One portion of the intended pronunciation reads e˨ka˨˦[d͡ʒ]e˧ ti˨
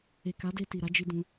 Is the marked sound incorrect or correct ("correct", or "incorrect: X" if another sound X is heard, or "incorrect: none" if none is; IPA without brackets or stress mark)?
incorrect: d